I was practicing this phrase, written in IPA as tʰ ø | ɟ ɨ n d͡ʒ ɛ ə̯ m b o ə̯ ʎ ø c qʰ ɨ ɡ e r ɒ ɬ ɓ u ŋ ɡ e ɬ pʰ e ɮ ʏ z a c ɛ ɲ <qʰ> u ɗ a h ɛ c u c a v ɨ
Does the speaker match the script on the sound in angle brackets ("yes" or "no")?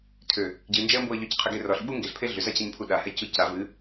no